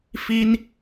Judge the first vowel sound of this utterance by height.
high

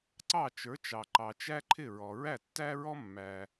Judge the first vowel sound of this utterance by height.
low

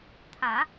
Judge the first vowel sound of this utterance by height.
low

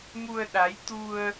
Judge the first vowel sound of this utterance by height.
high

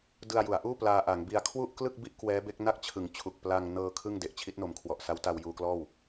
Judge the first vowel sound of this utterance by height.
high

